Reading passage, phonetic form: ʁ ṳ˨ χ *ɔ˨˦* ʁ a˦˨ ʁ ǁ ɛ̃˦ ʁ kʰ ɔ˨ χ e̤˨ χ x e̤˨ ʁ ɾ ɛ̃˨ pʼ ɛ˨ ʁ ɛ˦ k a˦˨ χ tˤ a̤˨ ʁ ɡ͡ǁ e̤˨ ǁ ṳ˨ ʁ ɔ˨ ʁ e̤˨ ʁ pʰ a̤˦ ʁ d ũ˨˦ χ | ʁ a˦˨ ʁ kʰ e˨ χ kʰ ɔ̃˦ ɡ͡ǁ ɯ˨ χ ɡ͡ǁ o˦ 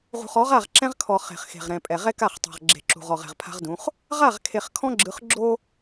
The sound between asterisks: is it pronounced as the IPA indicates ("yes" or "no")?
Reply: yes